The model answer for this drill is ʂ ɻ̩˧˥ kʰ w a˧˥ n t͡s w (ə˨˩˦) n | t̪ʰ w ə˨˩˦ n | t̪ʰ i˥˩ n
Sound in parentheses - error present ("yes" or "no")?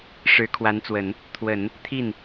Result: no